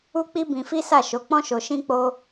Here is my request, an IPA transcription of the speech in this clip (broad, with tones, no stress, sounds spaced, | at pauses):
u˦ k͡p i˦ b ĩ˧ f i˦ s a˦˨ ʃ o˨˦ k͡p ɔ̃˦ ʃ o˧ ʃ ĩ˦ k͡p o˦